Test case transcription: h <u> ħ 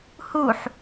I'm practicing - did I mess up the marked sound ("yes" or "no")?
no